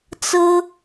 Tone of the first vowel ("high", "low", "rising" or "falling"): high